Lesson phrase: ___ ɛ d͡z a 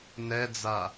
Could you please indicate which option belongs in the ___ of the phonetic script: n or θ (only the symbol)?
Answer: n